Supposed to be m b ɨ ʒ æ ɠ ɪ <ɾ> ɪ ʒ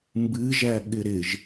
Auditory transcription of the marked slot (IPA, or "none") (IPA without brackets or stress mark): ɾ